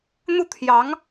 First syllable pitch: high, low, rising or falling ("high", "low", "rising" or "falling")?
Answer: falling